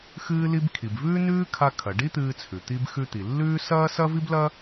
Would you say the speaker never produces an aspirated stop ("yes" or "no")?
no